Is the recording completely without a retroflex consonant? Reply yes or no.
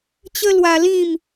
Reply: yes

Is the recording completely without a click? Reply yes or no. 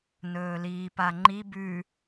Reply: no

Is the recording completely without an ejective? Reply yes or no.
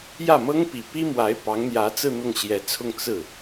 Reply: yes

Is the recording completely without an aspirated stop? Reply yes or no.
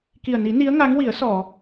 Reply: yes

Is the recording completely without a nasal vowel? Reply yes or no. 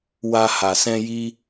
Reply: no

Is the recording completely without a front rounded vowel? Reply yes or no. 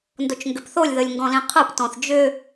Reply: no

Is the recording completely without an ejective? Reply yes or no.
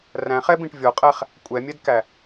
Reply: no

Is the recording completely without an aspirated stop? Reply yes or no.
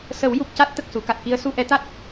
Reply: yes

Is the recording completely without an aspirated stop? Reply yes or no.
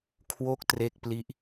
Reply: no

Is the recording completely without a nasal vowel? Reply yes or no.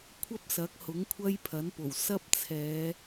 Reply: yes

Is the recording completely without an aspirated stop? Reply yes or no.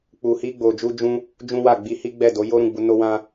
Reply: yes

